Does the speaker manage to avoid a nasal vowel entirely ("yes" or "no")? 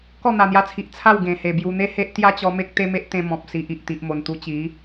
no